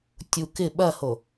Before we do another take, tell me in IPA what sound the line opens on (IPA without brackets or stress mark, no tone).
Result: tʲ